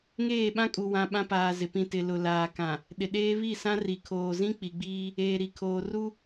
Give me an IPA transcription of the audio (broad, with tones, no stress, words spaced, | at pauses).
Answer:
ŋeː˦˨ɓã˦kʼu˨wã˨ ɓã˦paː˨ zɪ˨pĩ˦˨ tɪ˨lʊ˨ laː˨kã˨ | ɗɪ˨ɗeː˦ βi˦˨sã˦ ri˨kʰoː˨zĩ˦ k͡pi˨ɡ͡biː˦ | eː˨ɾi˨kʰoː˨ru˦